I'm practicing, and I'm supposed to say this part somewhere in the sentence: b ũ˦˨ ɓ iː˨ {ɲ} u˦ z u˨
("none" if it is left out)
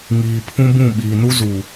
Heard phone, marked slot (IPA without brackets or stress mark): n